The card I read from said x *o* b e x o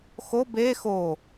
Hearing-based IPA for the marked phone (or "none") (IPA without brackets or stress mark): o